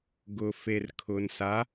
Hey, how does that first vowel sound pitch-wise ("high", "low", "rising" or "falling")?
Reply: low